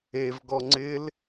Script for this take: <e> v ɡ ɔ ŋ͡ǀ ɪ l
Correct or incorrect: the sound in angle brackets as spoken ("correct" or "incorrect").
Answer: correct